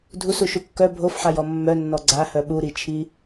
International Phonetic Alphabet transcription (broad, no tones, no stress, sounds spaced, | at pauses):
dʱ u s u ʃ u kː œ bʱ o f ħ a j ɔ mː œ nː ɔ ɡ͡ǀ a h œ ɓ u ɾ i t͡ʃʰ i